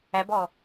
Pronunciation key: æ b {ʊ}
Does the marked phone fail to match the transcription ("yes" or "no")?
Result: yes